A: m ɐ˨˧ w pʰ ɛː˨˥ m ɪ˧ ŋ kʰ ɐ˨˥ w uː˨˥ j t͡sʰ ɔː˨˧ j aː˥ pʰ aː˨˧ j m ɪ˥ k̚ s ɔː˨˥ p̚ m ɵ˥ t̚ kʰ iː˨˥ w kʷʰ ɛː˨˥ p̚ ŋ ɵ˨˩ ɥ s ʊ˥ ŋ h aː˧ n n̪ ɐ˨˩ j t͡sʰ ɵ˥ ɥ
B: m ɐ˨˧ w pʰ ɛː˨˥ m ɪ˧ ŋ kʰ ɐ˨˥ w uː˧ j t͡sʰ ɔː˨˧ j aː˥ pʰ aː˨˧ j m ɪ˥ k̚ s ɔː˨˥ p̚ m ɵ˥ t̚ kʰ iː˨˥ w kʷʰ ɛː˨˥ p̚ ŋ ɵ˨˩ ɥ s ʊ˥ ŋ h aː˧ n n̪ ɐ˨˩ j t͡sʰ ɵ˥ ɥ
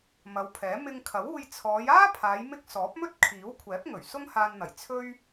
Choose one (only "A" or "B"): B